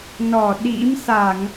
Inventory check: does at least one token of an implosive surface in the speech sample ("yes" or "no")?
yes